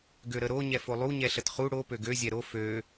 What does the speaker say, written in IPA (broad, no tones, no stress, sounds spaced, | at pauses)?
ɡ ø ɾ ə ɾ o ɲ ɛ f o lˠ u ɲ ɛ ɬ ə t χ u ɽ o p ø ɡ ø zʲ ɛ ɾ o f ø